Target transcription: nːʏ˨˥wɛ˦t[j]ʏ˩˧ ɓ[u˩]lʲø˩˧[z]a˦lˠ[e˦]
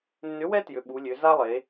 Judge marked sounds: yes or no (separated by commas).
yes, no, yes, no